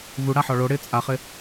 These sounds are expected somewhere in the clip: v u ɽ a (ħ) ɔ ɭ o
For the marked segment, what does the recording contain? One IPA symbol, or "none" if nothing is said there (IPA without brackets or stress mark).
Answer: ħ